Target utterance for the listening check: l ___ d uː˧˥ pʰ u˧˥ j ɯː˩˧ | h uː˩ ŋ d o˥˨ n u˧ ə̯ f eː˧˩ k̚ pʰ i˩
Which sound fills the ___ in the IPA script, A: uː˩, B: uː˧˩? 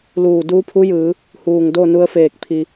B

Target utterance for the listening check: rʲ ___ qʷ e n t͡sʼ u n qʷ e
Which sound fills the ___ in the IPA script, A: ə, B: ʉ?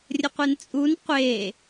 A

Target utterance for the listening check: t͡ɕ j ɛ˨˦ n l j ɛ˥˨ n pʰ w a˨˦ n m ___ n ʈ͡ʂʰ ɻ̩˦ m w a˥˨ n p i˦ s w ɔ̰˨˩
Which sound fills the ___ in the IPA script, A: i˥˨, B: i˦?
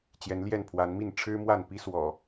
A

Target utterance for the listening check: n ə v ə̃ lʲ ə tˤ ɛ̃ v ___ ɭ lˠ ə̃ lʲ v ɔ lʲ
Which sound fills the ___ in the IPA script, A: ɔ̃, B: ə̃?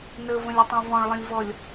A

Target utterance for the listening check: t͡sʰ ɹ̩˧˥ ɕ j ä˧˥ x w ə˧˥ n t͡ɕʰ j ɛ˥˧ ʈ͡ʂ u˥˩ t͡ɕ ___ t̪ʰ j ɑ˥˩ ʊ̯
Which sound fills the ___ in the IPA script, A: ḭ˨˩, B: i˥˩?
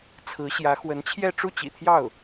A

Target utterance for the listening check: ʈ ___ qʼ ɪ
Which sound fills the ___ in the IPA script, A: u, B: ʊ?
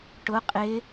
B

